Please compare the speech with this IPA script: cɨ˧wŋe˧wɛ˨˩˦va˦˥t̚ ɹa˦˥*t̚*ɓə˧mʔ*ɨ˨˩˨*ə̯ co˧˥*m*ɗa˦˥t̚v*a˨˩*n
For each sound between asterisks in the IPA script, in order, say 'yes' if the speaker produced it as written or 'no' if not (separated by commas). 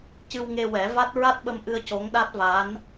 yes, no, no, no